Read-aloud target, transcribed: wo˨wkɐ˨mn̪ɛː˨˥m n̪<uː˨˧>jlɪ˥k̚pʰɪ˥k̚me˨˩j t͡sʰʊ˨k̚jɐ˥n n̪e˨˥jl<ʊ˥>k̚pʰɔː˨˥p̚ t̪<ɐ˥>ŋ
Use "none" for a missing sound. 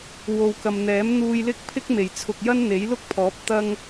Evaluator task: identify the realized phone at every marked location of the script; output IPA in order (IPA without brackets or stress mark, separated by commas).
uː˧, ʊ˥, ɐ˥